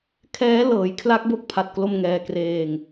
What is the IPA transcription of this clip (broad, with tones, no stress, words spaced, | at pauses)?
kʰɛː˦˥lɤː˩˦jkʰla˦˥k̚ bo˦˥k̚pʰa˨˩t̚klo˧m ŋɛː˧ kreː˧ŋ